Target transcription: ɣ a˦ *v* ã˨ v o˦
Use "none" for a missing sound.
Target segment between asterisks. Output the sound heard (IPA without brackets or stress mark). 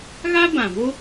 b